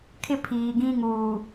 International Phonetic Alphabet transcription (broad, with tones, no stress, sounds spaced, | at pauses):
kʰ ɪ˦ pʰ iː˨ ɡ ĩ˦ ŋ uː˨